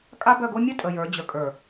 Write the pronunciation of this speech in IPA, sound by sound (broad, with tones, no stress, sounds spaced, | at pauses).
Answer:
kʼ a˦ b œ˦˨ ɡ o˦ mʲ ə˦ tʼ ə˨ j ə˞˨˦ d͡ʑ ə˨ kʼ ə˞˨